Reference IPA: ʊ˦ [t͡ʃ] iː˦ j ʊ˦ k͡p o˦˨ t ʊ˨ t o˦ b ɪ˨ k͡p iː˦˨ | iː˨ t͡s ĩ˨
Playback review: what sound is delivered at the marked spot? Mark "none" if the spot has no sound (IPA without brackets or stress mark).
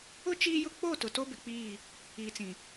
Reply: t͡ʃ